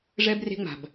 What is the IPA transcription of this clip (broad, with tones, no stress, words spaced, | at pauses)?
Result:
ʐɛ˦bre̤˦ŋ͡ma̤˨b